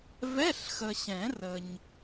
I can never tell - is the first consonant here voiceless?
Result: no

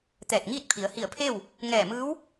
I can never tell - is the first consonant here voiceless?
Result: yes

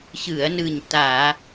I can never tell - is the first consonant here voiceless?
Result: yes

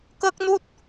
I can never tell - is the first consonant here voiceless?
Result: yes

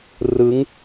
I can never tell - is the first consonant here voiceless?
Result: no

